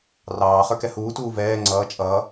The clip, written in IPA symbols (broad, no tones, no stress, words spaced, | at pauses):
rɑː χə˞kɛhuːtuː vɛː ŋ͡ǀʌː t͡ʃʼʌː